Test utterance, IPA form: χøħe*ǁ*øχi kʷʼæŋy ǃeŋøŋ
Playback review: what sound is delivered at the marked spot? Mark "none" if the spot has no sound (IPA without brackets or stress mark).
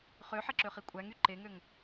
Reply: ǁ